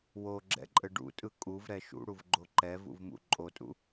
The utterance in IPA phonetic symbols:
woɡ͡ǁɛ̰ǃʼɘ ɖṵtʼɯ kʼuvɾɛ ʃṵɽuvɡ͡ǃo ǃɛvṵvmṵ ǃʼotʼṵ

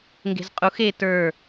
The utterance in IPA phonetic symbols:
ŋɡe̤zqʼux e tə˞

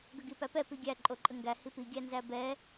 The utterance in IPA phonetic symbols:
ɡəɡipæpɛ piɡʲæ ǃʼoǃʼəŋɡæ hipi ɡʲænzæbɛ

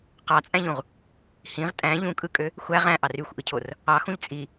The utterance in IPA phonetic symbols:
qɑt͡sʼæ̃ʎũʁ | hĩʁ tʼæ̃ ʎũkʼɯkʼø | xʷæ ʁæ̃ʔɑr yxʷʔɯcʰor | ɑxũʎ t͡sʼi

